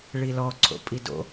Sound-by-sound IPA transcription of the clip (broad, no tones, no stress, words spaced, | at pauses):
ɭilɔ ǀʰo̰pʼido̰